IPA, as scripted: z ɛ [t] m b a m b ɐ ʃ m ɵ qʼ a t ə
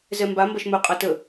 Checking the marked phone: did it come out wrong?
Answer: yes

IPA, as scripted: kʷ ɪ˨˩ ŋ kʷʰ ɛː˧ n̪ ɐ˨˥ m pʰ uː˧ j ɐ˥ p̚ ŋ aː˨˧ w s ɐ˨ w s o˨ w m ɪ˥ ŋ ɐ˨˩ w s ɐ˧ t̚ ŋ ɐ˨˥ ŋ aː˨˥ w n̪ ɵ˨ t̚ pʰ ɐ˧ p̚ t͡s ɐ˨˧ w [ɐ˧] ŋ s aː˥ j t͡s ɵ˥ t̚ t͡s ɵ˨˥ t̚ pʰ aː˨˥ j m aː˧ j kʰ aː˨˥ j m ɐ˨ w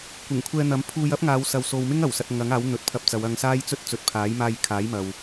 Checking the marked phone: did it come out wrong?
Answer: no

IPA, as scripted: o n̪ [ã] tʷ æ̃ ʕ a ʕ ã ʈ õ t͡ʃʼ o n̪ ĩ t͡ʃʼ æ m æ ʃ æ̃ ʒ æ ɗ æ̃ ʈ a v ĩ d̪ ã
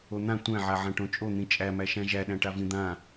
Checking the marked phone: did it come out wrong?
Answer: no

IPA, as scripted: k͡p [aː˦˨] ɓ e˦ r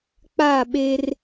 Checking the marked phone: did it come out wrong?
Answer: no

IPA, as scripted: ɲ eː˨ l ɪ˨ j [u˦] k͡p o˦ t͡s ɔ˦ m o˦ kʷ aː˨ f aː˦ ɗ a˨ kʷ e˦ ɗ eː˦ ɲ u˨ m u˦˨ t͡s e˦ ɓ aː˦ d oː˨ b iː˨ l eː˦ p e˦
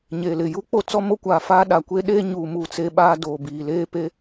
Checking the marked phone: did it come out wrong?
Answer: no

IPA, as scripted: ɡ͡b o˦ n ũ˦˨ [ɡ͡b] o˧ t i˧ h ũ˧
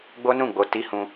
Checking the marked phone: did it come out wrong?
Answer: no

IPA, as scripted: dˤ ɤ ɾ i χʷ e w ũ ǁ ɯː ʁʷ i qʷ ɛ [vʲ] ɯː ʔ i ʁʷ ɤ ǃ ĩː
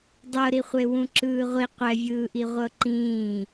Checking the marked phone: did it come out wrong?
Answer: no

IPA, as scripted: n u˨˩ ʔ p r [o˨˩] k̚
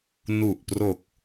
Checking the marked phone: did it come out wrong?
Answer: no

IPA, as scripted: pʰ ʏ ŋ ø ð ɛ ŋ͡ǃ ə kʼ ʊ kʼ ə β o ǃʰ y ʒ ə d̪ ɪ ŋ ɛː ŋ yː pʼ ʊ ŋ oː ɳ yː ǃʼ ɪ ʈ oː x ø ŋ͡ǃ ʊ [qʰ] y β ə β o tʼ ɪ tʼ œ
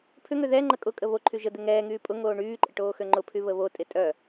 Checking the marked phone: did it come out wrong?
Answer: yes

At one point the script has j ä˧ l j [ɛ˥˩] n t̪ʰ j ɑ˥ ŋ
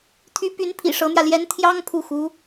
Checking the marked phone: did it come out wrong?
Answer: yes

